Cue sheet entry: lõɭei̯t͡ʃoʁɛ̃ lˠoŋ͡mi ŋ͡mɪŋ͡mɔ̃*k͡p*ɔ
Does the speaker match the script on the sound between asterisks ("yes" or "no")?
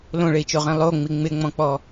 yes